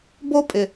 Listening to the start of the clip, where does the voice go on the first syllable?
high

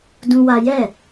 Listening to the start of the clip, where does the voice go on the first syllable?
high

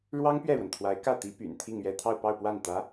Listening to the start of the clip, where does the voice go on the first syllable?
high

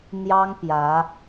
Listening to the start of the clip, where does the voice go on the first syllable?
high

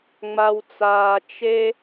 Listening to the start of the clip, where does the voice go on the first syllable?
low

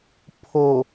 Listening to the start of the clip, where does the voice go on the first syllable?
low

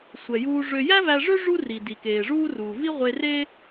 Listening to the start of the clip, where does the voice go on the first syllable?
low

